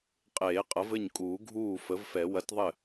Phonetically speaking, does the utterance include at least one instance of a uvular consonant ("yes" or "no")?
yes